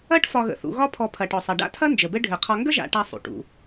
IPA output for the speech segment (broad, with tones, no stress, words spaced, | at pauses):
ɐ˥ʈ fɒ˨ɣə̰˩θṵ˨ɣɒ˦ pʰɔ˨pʰɐ˩ʈɔ˩sˤɐ˩ ɖa̰˥tʰɐ˥ nd͡ʒə˩bɘ˥ ɖʱɘ˩qʰɒ˨ŋɡə˦ʒa̰˨ ʈa˦sˤṵ˩ʈṵ˩